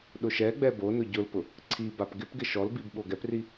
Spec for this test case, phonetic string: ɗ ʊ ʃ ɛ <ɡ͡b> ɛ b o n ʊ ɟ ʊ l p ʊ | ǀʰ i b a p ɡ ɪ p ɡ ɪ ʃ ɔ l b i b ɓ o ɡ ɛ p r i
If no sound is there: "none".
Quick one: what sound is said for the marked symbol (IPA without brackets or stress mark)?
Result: ɡ͡b